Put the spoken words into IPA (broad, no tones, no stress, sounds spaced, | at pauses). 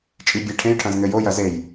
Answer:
t͡ʃʼ i bʲ ɛ ʈʰ ẽ j ʈʰ ɐ̃ z ŋ ɘ j o j ɐ z e j